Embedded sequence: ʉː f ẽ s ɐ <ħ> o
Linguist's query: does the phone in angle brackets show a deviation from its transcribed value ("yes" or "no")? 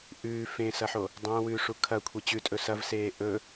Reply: no